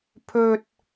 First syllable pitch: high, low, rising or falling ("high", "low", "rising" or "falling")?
high